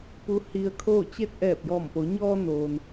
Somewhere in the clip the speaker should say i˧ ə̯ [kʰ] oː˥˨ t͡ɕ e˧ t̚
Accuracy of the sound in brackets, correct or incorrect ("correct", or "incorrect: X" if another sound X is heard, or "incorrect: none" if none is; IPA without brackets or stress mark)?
correct